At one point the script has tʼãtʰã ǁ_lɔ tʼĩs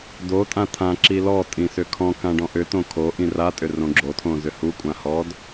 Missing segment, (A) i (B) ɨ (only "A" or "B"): A